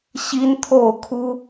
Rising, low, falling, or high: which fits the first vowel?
high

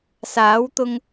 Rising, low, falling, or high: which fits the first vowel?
rising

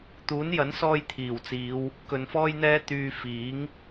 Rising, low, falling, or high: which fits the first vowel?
rising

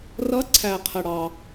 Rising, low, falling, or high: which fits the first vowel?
rising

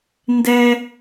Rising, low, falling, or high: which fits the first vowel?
high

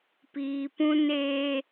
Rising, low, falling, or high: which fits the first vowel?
low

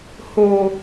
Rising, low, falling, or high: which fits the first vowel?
low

